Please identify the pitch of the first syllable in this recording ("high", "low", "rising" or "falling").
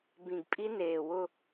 low